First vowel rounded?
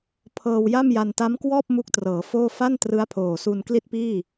no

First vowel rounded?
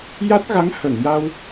no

